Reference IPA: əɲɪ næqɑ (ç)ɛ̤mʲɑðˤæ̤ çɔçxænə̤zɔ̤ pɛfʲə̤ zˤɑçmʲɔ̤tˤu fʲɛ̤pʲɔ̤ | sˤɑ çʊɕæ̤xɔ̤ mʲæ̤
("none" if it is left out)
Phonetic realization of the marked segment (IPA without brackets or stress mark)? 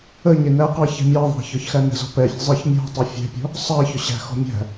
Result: ç